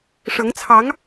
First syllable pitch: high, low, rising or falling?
rising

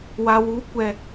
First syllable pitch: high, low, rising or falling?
low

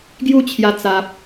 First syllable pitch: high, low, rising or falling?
falling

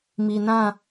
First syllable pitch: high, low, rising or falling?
low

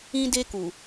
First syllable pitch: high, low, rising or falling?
high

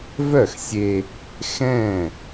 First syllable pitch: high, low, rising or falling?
falling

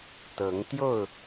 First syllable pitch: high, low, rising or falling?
rising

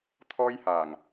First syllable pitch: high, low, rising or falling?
high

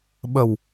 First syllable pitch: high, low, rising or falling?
low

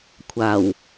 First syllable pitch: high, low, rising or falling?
low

